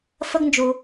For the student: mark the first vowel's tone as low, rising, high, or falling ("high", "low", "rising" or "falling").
high